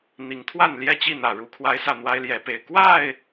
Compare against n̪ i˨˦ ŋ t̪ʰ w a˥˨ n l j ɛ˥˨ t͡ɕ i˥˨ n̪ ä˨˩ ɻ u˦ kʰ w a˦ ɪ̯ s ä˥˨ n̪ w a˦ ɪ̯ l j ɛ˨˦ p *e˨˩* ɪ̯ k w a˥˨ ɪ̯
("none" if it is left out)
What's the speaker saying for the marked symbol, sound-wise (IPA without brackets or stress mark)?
e˨˩